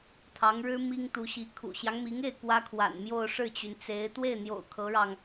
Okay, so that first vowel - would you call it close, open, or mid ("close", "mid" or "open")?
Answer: open